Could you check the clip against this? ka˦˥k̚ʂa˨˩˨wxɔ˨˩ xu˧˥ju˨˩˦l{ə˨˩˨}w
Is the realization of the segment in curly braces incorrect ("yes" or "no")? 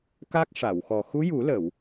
no